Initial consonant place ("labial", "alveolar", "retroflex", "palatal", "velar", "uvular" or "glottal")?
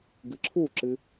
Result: velar